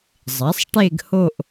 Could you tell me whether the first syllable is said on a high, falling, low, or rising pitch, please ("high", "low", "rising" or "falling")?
rising